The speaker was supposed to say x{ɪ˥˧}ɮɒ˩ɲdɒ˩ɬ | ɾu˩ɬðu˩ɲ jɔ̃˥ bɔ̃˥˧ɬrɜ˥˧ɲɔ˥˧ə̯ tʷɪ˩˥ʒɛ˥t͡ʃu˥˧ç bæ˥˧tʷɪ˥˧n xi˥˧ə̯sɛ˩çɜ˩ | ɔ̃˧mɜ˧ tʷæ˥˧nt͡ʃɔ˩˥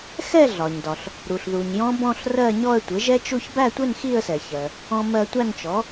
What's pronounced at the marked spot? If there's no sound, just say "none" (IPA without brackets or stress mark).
ɛ˥˧